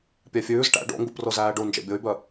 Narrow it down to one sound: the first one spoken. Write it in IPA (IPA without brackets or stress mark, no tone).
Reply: pʲ